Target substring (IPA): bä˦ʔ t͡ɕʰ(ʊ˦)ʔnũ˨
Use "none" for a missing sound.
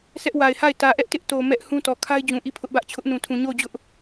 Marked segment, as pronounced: ʊ˦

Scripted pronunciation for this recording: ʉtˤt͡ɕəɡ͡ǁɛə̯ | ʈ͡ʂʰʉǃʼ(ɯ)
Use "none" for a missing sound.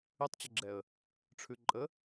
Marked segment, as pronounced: ə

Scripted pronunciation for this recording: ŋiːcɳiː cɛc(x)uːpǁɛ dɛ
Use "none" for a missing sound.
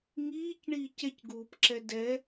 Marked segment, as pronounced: ɡ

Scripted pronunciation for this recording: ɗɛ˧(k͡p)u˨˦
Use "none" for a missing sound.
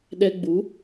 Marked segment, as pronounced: ɡ͡b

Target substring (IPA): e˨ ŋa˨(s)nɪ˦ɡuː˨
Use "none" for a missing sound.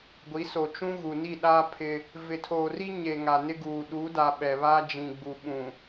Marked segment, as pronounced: none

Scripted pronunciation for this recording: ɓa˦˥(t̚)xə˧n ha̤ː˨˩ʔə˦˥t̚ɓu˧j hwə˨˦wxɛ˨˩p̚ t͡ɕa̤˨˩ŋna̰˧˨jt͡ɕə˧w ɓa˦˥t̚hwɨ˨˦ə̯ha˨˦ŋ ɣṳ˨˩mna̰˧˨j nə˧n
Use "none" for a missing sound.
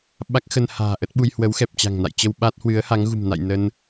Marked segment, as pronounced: k̚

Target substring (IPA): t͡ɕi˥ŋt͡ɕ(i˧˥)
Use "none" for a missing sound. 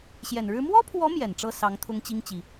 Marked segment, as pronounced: i˨˩˦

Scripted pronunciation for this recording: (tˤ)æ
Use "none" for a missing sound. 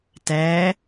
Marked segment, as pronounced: t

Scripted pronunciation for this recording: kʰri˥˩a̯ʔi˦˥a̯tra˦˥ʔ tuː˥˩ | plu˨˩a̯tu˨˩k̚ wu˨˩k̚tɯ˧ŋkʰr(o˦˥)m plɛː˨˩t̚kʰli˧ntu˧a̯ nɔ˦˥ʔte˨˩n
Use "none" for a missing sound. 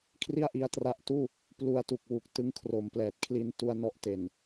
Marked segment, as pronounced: o˩˦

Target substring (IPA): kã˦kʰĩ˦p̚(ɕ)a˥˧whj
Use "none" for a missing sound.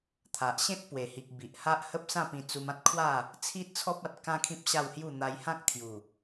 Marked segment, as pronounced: ɕ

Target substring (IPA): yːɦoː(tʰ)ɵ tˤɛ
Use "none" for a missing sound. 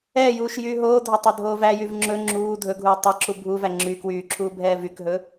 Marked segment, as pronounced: dʱ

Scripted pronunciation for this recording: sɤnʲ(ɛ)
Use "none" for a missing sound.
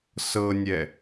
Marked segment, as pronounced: ɛ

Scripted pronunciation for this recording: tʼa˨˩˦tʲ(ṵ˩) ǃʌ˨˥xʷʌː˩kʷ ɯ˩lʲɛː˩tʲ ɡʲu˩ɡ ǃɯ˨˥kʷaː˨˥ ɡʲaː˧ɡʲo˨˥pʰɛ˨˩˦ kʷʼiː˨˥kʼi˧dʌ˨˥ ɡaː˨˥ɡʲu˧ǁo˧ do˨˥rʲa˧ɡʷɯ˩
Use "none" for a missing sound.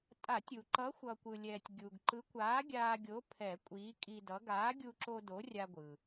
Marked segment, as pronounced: u˩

